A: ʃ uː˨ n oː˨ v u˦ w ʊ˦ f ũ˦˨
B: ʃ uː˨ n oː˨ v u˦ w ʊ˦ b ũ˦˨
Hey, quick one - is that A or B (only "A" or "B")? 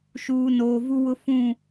A